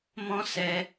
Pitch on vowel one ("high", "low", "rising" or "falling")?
high